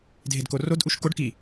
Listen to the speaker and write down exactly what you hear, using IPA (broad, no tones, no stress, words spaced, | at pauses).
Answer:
dʱedkorodʔuʃ koɖ ki